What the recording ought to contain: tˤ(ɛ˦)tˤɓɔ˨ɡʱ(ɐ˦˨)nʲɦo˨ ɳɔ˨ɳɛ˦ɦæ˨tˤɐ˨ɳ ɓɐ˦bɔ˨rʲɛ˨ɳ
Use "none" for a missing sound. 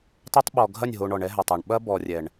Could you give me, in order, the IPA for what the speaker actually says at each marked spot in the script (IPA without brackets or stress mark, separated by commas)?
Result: ɛ˦, ɐ˦˨